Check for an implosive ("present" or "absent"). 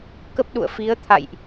present